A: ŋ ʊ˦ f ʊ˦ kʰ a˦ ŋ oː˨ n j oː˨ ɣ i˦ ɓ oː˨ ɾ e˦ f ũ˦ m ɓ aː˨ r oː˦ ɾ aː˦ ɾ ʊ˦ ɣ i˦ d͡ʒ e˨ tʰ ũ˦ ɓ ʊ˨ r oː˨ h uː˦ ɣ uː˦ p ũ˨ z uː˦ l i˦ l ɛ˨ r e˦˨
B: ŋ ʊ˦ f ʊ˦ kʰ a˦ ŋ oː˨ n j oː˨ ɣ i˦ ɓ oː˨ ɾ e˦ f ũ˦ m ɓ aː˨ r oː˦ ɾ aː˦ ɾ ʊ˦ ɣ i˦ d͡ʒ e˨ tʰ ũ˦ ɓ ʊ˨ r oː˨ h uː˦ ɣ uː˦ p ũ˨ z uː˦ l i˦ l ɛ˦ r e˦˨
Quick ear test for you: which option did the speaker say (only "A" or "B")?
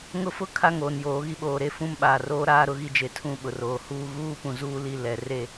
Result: A